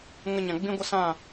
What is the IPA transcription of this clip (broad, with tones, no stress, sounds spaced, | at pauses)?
ŋ ə˧ ɲ ã˨ ɡ͡b ĩ˦ ɡʷ ə˦ s ã˦˨